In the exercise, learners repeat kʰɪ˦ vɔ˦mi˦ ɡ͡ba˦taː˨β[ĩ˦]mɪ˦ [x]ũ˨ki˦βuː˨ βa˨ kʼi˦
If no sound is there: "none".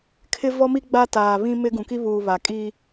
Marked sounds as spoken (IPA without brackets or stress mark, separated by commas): ĩ˦, ɡ